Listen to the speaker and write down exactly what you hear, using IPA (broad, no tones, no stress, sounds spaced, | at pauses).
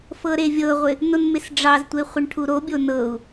f ɤ ɾ e vʲ ɤ ʁʷ ɪ | n o n m ɪ s ɖ͡ʐ ɑ z tʷ e χʷ ɪ ɳ ʈʰ u ɾ o bʲ o n ɤ u̯